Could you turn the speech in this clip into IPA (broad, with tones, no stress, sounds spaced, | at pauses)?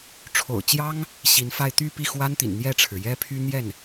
ʈ͡ʂʰ o̰˨˩ ʊ̯ t͡ɕ j ɑ˥ ŋ | ɕ i˧˥ n f a˥˧ ɪ̯ t̪ y˥˧ p i˥˩ x w a˥ n t̪ ḭ˨˩ n n̪ j ɛ˥˩ ʈ͡ʂʰ ɻ̩˩ j ɛ˥ pʰ y˥ n̪ j ɛ˥˩ n